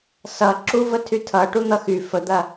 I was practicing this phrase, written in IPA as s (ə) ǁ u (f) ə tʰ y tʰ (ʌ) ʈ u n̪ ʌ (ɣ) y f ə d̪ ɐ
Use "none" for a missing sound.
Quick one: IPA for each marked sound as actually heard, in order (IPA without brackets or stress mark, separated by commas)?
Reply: ʌ, v, ʌ, x